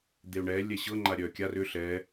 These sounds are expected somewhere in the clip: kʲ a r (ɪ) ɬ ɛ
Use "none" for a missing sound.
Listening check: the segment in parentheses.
ʏ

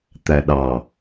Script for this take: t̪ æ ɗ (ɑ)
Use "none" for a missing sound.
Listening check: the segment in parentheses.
ɑ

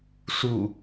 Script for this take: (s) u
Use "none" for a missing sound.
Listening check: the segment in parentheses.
s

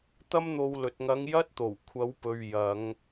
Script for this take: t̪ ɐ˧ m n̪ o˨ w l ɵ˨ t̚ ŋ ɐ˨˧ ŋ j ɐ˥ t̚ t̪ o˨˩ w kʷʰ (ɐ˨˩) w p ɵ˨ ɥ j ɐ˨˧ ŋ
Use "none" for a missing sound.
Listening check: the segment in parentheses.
ɐ˨˧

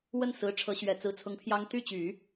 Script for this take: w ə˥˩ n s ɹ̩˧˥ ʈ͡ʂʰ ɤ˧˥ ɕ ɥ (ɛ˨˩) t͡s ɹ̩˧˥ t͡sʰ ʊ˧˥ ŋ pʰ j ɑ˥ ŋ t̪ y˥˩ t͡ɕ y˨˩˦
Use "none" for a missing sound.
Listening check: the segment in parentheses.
ɛ˨˩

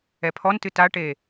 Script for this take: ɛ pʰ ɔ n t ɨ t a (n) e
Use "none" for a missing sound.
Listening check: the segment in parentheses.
ʈ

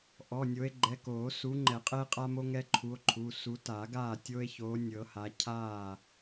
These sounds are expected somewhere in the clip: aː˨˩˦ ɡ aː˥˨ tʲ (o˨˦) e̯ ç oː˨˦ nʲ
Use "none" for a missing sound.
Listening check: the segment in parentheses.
o˦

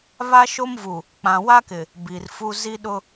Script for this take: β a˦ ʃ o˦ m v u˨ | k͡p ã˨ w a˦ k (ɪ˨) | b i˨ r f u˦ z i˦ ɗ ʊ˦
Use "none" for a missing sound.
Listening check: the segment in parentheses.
ɪ˨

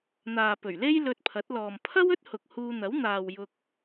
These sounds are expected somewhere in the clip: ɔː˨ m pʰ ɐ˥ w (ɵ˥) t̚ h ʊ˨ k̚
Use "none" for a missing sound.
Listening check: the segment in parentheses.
ɵ˥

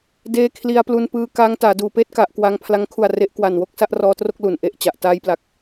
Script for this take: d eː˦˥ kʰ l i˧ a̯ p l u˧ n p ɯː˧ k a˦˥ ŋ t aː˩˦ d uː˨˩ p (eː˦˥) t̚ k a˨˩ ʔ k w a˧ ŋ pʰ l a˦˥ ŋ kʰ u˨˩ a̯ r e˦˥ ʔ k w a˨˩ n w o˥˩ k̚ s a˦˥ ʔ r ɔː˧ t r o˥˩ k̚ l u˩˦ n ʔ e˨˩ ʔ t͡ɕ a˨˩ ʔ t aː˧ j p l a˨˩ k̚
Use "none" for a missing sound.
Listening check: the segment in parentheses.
eː˥˩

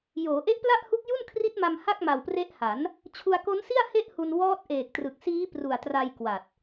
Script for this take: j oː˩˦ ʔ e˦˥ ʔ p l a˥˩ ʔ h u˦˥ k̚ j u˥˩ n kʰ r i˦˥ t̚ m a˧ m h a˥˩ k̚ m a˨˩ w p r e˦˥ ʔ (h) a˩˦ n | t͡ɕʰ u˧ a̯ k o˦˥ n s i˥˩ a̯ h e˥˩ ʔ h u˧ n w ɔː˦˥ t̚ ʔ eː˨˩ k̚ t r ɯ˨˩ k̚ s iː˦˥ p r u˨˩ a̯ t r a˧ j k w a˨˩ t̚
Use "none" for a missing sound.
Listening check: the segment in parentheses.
h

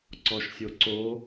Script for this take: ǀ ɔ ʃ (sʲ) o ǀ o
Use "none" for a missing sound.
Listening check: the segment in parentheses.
sʲ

